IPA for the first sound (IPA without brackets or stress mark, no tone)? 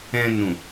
ɛ̃